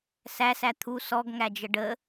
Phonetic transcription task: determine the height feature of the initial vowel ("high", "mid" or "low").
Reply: low